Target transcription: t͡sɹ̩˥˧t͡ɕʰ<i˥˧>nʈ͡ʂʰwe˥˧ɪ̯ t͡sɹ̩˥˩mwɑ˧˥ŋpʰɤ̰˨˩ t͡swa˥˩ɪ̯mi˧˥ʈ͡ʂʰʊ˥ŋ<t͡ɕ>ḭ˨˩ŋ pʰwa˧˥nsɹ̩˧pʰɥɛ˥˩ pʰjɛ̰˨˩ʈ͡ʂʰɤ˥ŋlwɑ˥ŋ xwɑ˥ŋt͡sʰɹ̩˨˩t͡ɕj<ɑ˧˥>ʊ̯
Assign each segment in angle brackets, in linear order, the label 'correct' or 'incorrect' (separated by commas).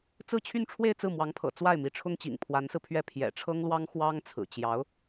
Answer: incorrect, correct, correct